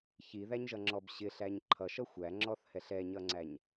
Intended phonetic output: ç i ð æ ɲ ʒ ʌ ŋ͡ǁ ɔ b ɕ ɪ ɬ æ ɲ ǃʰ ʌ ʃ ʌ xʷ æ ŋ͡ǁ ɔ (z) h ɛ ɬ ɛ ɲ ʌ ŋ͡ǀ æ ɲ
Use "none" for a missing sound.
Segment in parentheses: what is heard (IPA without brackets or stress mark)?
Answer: θ